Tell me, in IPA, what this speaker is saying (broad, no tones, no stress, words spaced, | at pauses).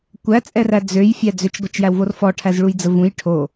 kʷæt͡sʼɛræ d͡zøjfʲæ d͡zøt͡ʃɡʷɐt͡ʃjæwvor fɔʈʰæzɭujd͡zə vũj ʈʰo